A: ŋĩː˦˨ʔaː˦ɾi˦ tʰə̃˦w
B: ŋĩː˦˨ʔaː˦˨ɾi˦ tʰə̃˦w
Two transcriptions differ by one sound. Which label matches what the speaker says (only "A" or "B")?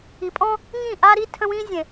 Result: A